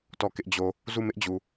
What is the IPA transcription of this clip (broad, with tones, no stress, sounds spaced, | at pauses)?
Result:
t ɔ˦˨ k ɪ˦ ʔ d͡ʑ o˨ | z u˦˨ m ɪ˦ ʔ d͡ʑ u˨